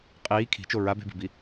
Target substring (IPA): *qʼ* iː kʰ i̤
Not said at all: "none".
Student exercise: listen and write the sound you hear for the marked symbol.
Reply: qʼ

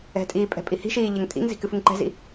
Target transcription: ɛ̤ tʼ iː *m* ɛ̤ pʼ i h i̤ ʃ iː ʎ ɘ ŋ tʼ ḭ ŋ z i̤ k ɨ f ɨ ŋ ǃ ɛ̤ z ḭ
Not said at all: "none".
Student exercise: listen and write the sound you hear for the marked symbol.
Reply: pʼ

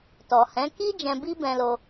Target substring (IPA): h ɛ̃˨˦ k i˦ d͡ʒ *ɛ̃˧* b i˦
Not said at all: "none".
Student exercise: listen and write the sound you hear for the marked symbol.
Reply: ɛ̃˧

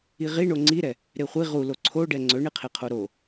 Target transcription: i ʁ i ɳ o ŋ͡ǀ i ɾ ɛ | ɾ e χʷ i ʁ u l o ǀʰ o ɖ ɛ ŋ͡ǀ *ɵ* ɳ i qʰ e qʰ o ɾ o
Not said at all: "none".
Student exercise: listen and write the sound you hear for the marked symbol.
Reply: ɵ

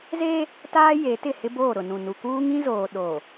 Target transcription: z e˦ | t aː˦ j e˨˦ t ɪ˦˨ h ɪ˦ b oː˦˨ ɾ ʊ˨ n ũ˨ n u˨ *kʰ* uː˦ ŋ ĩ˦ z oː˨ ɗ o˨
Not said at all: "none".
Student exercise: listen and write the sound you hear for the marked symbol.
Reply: k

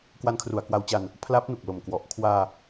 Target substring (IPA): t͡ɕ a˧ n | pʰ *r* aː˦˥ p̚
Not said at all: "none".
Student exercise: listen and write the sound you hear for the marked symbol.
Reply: l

